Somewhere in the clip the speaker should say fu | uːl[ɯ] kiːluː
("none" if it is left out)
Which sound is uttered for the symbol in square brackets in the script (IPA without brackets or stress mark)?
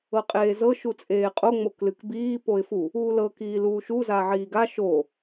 ɤ